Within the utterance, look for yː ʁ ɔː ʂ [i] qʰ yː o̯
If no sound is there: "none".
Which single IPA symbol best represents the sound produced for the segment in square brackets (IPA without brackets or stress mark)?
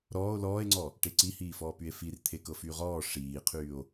iː